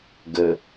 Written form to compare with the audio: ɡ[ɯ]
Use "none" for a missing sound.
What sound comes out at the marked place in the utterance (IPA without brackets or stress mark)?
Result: ə